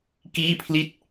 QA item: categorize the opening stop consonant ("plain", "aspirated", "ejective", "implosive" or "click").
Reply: plain